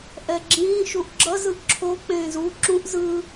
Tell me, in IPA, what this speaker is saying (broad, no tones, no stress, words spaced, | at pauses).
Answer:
ʔɛɡ͡ǁĩː ʃuʔɡ͡ǁʌz ɯʔǁʰo k͡pẽːzu ǁũʔ zɯ